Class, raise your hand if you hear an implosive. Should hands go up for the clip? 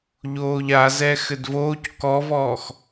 no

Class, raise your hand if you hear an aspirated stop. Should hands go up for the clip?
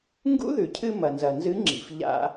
yes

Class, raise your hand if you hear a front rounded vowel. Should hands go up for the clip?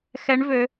yes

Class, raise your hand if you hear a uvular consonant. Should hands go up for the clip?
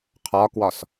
yes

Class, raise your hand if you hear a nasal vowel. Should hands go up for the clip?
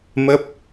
no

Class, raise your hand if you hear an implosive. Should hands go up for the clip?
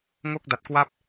no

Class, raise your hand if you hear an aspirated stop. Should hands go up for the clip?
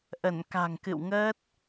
no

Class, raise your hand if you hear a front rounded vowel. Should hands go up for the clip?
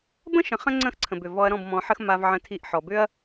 yes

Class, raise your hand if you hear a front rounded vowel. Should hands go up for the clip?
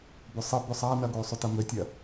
yes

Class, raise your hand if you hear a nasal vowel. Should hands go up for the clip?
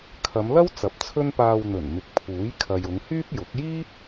no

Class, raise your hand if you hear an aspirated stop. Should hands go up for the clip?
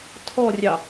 yes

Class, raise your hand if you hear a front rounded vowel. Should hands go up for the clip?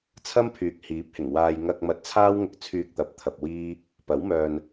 yes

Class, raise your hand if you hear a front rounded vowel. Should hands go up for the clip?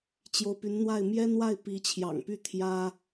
yes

